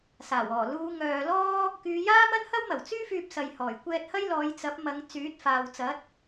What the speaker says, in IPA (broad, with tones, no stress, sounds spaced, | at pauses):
s aː˨˩ w ɔː˨˩ l uː˨˧ ŋ œː˨ l ɔː˥ | k yː˨˧ j aː˥ m ɐ˥ n h ɐ˥ w m ɐ˨˩ w t͡s yː˥ f yː˧ p̚ s ɐ˨ j h ɔː˨˩ j kʷ ɛː˧ t̚ h ɐ˥ j l ɔː˨˧ j t͡s ɐ˨˥ p̚ m ɐ˨˧ ŋ t͡s yː˨˥ t̚ f aː˨ w t͡s ɐ˨˥ t̚